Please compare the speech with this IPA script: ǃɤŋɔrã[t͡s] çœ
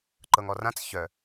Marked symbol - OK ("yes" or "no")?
yes